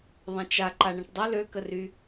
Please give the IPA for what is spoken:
ðˤ ə̃ t͡ʃ a ǃ a ɳ ə̃ ʈ dˤ ə l ø k ə r y

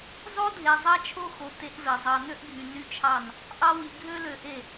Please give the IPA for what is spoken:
zˤ o˦ dʱ e˨ zˤ ɑ˦ t͡ʃʰ o˦ x o˨ t e˦ ʔ v e˨ zˤ ɑ˨ n ø˦ ʔ ɡʱ y˨ n y˦ t͡ʃʰ ɑ˦˨ n | ʔ ɑ˦ w i˨ ɡʱ ø˦ l ø˨ ʔ e˦˨

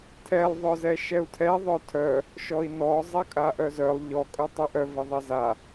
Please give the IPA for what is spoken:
tʰ ɛ lˠ ðˤ œ z ɛ ʃ ɛ u̯ tʰ ɛ ðˤ œ tʰ œ | ʃ ɔ i̯ n ɔ zˤ ɛ kʼ a ʔ œ z œ lˠ ʎ ɔ kʼ œ tˤ ɛ ʔ œ v ɛ ðˤ ɛ z a

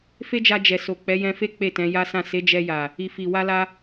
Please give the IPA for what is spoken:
f e˦ d͡ʒ a˧ d͡ʒ ɛ˨ s o˨ k͡p ɛ˨˦ j ɛ̃˧ f e˦ k͡p e˦˨ t ɛ̃˨˦ j a˦ s ã˦˨ s e˨˦ d͡ʒ ɛ˧ j a˨ | i˨ f i˨ w a˧ l a˧

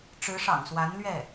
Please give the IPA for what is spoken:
ʈ͡ʂ ɻ̩˧˥ ʂ ɑ̰˨˩ ŋ s w a˧˥ n l ɥ ɛ˥˩

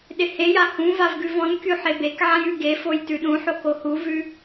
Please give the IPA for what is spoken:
ɗ ɪ h e j a h ũ v a v ɡ ʉ v ɔ̃ n kʲ u ħ e b e k ʕ ã j ʉ ɡ e f o j t ʉ ɗ ũ ħ o k o h u v ʉ

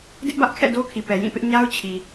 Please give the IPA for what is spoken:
d ɪ˦ ʔ b ä˦ ʔ kʰ ɛ̰˦˨ d o˦ kʰ i˨ p ɛ˨ j ĩ˦˨ p ɪ˦ ʔ ɲ a˦ ʊ̯ t͡ɕʰ i˨

